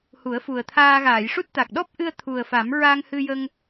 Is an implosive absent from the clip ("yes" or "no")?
no